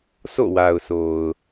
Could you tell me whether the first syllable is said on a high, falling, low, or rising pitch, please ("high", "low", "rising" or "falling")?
falling